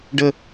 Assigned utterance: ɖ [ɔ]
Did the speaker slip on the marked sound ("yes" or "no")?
yes